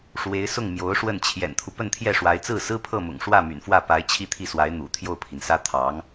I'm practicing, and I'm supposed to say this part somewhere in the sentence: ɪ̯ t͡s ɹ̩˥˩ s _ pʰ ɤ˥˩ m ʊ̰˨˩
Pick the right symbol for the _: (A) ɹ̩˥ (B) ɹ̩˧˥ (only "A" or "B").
A